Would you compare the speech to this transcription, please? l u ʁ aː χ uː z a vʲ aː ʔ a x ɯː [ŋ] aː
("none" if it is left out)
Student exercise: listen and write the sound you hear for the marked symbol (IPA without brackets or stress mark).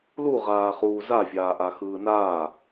n